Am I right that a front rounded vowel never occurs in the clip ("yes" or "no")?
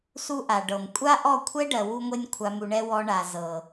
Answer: yes